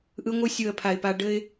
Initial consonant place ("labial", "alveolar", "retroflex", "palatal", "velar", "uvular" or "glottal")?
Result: glottal